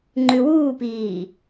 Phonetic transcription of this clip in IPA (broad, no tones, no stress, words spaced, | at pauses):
ŋ͡ǃʉwuːpiː